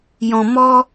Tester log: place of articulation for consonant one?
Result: palatal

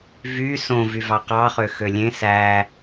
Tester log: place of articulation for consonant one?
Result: labial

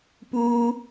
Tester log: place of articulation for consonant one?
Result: labial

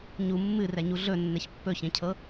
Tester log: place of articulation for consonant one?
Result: palatal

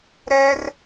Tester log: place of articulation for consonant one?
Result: alveolar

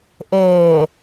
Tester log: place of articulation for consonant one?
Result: glottal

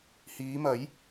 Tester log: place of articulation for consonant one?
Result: glottal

